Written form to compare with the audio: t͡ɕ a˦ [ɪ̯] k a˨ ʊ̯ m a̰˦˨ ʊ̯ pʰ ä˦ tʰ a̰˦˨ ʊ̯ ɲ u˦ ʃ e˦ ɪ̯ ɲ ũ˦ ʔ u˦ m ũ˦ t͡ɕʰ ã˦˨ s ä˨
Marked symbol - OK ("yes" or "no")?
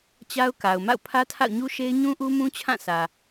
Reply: no